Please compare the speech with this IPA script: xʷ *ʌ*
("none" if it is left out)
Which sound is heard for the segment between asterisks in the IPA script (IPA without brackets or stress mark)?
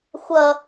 ʌ